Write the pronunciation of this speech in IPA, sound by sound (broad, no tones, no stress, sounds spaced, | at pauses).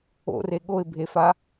o̰ r e ɠ o ɪ̯ bʱ e f a